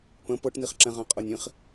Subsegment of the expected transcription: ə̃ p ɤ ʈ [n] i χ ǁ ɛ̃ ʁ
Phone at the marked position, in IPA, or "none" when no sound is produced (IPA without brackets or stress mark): n